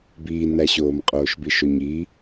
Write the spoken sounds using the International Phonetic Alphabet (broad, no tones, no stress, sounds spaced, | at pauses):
b iː n æ ɕ oː m qʼ oː ʃ b i ʃ o ɲ i